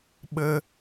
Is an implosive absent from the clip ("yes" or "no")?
no